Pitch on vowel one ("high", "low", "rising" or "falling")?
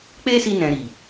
high